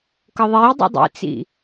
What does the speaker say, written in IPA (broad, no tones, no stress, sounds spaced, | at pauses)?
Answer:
k ɤ ðˤ e j dˤ ḭ dˤ ḭ t͡s ḭ